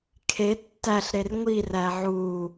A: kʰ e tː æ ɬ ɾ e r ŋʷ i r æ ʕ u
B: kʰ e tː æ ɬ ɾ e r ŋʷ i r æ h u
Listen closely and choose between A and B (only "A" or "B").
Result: A